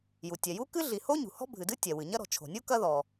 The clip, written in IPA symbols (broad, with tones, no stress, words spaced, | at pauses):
ju˩tʲɛ˩ju˥ kɨ˥ɮi˩ ho˥ɲṳ˩ hɔ̤˥bʱɨ˩dɨ˥ tʲɛ˩wɨ˩ɲɐ˥ ɾɔ̤˩t͡ʃʰo̤˩nʲu˥ kɐ˥ðɔ˩